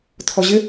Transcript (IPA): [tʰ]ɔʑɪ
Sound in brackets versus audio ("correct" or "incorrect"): correct